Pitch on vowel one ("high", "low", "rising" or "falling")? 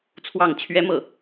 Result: falling